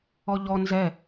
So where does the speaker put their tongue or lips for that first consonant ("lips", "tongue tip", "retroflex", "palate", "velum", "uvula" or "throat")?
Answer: palate